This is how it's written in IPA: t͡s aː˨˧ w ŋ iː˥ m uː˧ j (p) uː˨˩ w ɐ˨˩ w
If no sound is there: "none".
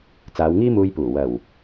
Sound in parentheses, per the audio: p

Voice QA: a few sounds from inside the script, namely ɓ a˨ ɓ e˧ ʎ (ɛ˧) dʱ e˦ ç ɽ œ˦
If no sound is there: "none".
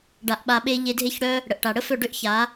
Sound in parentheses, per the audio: e˧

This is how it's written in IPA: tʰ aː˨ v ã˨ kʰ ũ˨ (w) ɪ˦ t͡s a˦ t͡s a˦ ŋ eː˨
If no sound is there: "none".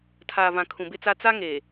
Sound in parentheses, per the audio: b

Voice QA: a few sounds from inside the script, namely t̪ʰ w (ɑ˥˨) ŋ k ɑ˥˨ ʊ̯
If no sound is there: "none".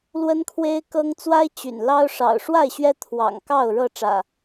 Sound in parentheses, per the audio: ɑ̰˨˩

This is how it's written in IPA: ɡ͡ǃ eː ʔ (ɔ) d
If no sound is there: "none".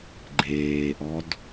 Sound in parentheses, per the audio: ɔ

